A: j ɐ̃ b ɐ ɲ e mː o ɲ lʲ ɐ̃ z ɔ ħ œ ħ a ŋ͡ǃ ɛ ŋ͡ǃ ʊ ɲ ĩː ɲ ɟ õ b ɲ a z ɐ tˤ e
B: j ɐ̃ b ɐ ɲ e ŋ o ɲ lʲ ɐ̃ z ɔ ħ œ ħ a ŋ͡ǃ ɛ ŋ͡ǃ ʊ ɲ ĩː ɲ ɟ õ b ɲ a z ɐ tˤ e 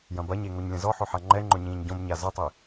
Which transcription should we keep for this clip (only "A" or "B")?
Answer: B